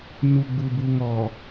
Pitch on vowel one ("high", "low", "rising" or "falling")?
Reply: low